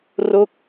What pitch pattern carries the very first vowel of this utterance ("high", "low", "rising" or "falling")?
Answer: falling